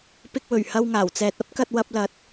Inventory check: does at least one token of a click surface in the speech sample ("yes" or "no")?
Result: no